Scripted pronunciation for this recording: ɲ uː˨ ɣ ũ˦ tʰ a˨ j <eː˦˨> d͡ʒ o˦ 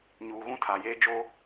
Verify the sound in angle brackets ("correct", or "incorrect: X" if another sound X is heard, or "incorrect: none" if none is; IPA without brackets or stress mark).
incorrect: eː˦